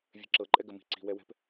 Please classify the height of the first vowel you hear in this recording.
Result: mid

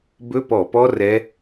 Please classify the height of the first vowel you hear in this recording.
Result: mid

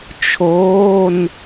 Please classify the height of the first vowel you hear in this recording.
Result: mid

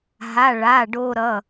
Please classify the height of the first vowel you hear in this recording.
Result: low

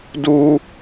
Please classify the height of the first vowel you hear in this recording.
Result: high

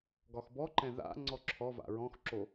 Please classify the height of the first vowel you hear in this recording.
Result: low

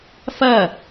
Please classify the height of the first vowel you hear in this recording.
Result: low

